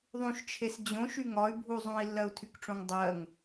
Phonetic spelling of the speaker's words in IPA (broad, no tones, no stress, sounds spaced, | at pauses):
ðˤ ũ ʃ t͡ʃʰ e s d͡ʑ õ ʃ y ŋ ɒ y̯ bʱ u zˤ ũ i̯ lː ɜ u̯ tʰ y k ʈ͡ʂ õ ŋ dˤ ɜ ŋ